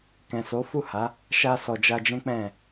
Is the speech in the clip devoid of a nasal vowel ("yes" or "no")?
no